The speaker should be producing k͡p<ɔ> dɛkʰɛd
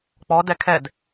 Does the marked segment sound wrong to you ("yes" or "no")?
no